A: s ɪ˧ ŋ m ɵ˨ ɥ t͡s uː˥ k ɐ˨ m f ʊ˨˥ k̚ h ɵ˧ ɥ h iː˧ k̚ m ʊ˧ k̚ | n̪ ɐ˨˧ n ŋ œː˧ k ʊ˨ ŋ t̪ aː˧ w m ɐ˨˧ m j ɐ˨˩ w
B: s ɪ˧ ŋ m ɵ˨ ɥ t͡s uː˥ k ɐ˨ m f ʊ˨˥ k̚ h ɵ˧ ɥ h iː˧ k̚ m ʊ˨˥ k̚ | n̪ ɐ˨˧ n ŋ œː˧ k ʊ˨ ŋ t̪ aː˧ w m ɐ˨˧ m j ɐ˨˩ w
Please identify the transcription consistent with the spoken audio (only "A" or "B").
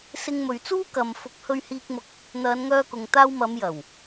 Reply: A